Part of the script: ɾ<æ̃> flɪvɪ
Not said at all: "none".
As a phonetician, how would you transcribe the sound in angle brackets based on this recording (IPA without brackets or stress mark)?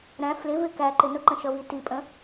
æ̃